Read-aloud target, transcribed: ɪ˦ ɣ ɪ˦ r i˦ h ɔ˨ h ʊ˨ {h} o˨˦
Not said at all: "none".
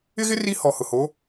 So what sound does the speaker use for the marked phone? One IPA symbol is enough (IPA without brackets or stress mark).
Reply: h